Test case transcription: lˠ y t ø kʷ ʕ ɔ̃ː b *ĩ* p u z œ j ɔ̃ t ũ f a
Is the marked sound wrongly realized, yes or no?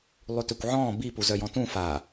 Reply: yes